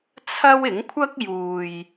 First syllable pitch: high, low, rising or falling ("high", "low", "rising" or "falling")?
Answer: high